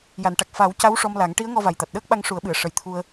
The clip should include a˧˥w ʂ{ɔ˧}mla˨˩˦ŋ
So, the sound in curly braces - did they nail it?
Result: yes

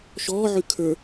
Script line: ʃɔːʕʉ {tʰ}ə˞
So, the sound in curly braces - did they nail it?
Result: no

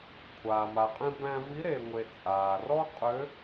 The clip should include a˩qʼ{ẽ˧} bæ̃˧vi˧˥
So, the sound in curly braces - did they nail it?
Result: yes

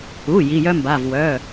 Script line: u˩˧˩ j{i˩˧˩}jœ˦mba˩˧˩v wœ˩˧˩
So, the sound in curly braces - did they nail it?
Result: yes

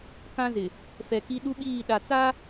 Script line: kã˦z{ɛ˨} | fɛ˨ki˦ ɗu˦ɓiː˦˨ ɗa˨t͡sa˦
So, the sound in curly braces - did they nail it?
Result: no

